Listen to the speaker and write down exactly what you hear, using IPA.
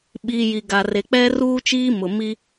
ɓ iː˨ j i˨ ɡ a˨ r e˨ k͡p ɛ˦ r uː˦ t͡ʃ iː˦ m ʊ˨ m i˦

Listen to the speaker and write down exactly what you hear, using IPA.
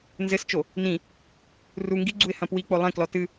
n z ɘ s t͡ʃ o | n ĩ | r u ŋ ɡ i ɡ͡ǀ u ɪ̯ h ɐ̃ p w i k͡p o lˠ ẽ k l ɔ t ɨ

